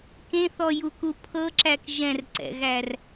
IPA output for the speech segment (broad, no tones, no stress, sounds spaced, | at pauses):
k ẽ θ ɔ j u k u pʰ ɤ ǁ æ k ʒ ɛ̃ r ǀ ɛ̰ ɣ æ r